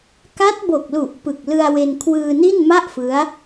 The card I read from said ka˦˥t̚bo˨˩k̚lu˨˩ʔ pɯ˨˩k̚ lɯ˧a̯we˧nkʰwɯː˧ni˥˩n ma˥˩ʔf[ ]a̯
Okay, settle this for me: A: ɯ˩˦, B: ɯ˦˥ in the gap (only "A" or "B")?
B